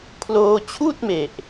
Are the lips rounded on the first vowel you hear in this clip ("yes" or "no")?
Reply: yes